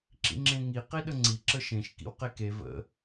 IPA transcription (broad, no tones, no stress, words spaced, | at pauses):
ǁḭŋ͡ǁẽŋi qiɗəŋ͡ǀi ǁəʃẽʃ kḭwqeke və̰